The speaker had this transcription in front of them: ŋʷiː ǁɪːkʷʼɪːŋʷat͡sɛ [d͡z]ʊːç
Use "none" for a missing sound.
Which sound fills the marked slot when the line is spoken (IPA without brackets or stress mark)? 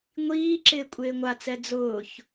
d͡z